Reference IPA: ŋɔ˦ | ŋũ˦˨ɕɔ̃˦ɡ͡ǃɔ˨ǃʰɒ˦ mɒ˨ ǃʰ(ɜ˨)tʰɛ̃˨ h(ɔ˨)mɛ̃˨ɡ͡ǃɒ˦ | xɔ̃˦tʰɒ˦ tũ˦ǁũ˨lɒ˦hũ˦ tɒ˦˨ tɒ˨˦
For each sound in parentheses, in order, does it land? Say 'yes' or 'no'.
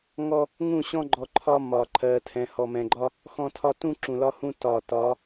yes, yes

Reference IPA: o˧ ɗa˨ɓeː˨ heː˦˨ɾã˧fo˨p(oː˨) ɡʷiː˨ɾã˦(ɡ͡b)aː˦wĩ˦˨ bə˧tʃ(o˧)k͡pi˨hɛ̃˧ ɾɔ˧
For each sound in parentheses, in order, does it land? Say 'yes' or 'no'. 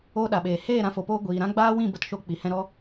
no, yes, yes

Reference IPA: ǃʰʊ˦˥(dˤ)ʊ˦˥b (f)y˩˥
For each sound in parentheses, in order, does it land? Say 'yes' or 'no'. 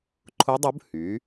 yes, no

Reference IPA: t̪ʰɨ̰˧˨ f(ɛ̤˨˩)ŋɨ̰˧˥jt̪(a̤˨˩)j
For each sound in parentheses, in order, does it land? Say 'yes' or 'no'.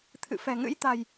yes, yes

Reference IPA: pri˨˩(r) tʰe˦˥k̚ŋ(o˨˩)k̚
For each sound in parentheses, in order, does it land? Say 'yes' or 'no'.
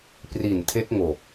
no, yes

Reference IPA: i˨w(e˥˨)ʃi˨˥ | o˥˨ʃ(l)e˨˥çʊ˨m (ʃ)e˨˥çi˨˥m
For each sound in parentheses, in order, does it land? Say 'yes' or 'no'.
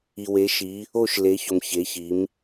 no, yes, no

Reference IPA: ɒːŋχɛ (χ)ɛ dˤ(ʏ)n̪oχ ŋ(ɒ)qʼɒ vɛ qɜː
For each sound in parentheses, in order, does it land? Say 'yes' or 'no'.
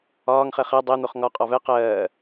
yes, no, yes

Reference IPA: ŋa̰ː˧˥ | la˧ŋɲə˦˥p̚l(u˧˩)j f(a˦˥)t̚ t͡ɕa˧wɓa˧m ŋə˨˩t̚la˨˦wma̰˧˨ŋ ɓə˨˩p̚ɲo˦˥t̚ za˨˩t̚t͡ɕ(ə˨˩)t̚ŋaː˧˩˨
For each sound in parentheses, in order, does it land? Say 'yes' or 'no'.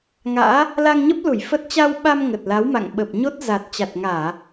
yes, no, no

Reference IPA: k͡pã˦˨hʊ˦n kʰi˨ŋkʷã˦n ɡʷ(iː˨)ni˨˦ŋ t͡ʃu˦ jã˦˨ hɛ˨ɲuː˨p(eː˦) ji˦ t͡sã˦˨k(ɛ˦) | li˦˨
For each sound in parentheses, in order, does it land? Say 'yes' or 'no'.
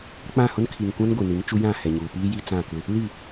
no, no, no

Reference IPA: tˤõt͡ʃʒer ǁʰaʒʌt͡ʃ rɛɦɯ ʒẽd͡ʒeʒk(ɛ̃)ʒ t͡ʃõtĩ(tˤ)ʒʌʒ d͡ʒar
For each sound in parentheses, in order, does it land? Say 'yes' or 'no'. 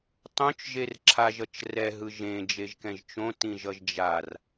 yes, no

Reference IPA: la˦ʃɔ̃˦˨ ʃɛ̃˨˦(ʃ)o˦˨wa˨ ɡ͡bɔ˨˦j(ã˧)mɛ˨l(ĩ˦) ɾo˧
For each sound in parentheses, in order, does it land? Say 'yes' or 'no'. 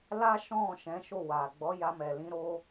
yes, no, no

